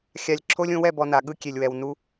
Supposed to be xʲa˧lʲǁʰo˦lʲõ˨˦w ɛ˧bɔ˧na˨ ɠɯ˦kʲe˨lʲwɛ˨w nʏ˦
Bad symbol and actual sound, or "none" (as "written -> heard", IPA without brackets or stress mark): ʏ˦ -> u˦